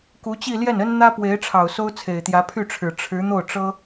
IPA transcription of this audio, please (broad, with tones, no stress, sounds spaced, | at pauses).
k u˧˥ t͡ɕ i˥˧ l j ɛ˥˩ n ə˥ n n̪ ä˥ p w e˧˥ ɪ̯ ʈ͡ʂʰ ɑ˨˩ ʊ̯ s o˥ ʊ̯ t͡sʰ e˨˩ ɪ̯ t̪ j ä˧˥ pʰ y˥˩ ʈ͡ʂʰ ɻ̩˨˩ ʈ͡ʂʰ ɻ̩˧˥ n̪ o˥˩ ʊ̯ ʈ͡ʂ ɤ˥